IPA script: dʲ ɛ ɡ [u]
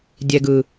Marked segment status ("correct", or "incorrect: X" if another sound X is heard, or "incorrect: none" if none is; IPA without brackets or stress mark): incorrect: ɯ